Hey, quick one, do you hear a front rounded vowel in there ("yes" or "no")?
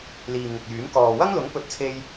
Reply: yes